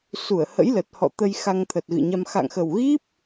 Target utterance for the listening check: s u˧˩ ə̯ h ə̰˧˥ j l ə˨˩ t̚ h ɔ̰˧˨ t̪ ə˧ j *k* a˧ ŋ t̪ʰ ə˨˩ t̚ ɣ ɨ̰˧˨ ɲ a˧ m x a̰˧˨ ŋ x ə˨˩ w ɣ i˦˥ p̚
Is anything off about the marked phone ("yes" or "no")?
yes